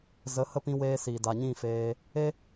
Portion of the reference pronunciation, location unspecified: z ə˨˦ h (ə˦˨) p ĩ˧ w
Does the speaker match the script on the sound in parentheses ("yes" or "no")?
no